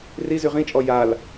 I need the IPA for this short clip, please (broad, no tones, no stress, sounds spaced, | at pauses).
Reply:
r i z y ʁ ĩ t͡ʃʼ ɔ j a l